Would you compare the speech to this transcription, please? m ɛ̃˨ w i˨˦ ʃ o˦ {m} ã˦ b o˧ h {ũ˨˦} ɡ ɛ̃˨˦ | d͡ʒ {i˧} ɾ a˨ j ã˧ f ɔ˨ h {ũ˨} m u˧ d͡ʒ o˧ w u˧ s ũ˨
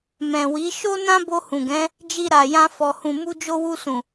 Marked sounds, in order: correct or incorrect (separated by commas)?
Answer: incorrect, incorrect, correct, correct